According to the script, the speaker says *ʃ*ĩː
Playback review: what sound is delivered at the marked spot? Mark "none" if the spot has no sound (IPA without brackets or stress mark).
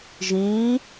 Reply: ʒ